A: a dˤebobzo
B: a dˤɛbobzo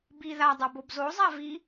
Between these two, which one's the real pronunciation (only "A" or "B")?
B